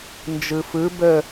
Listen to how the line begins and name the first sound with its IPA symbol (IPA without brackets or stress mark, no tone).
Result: n